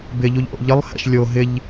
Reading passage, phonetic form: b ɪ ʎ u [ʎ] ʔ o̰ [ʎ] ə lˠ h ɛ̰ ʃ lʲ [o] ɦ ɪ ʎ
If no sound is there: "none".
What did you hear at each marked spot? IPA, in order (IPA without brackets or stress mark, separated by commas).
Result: ʎ, ʎ, o